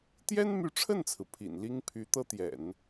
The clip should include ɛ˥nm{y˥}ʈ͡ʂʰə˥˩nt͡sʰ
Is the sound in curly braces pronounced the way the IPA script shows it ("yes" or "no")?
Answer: no